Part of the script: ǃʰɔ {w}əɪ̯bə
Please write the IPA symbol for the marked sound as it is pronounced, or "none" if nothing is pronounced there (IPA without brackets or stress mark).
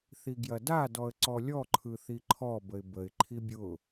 b